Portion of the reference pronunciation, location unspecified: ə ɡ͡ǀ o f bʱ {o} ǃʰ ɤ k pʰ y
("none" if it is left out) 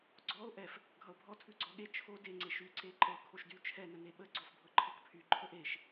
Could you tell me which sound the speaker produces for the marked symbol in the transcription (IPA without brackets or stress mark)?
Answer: ɤ